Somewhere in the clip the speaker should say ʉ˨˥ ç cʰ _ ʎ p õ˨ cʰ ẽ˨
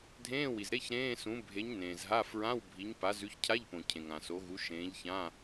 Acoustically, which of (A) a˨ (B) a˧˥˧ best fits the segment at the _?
B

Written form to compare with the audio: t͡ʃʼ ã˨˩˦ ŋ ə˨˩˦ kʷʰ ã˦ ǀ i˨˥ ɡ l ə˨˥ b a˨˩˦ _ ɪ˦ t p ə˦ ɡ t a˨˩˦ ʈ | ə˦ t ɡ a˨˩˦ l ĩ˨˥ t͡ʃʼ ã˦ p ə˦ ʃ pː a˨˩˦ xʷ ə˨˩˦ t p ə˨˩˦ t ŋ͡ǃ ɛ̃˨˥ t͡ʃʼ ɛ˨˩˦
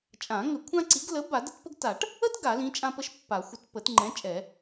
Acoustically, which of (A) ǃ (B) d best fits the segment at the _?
B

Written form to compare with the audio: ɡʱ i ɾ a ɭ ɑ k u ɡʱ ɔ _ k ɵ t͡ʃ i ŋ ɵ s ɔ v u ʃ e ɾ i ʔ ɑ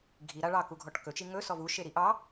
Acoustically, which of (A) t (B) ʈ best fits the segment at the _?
B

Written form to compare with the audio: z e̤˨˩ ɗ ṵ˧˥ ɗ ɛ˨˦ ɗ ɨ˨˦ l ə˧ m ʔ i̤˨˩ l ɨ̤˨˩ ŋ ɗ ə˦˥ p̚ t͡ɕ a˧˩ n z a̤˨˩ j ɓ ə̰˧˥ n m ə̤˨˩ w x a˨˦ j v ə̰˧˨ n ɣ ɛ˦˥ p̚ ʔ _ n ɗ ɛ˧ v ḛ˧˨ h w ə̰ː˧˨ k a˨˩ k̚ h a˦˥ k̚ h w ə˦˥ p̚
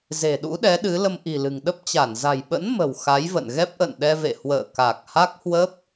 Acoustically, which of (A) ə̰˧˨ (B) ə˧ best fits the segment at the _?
A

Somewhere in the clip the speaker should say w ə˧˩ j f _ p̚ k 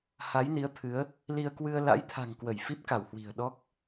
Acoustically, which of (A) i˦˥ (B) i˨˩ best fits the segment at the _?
A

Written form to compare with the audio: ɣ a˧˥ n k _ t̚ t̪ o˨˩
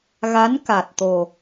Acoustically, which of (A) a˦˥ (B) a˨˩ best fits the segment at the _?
B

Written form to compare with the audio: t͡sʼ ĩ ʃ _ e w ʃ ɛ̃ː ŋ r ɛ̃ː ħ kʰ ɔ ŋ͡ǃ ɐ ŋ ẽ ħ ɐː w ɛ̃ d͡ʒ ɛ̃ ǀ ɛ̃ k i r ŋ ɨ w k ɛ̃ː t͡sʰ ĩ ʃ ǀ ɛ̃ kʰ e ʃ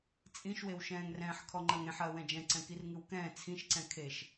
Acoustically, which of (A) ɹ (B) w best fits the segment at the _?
B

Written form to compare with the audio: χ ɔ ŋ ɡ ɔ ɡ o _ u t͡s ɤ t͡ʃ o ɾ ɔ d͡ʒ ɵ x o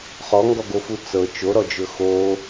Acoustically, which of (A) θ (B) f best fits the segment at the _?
B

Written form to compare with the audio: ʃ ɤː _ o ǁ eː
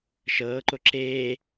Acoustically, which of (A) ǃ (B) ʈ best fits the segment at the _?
A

